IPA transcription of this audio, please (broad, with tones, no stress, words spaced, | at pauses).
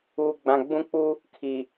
uː˨ɡ͡bã˨ ɡ͡bũ˦ k͡pu˦ | kʰi˨